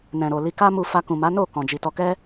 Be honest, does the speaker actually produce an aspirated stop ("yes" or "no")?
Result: no